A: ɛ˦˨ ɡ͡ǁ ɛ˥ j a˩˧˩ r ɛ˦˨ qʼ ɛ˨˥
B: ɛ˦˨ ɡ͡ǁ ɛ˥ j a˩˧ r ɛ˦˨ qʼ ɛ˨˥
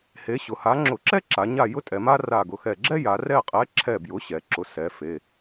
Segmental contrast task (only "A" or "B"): B